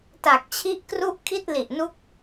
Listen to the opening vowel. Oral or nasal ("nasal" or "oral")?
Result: oral